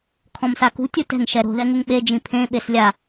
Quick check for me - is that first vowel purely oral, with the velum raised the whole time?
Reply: no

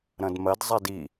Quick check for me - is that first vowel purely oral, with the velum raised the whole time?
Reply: no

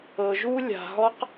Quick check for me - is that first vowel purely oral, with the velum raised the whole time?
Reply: yes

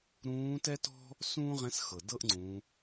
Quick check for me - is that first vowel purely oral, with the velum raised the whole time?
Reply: no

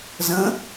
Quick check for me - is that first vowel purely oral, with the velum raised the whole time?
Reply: no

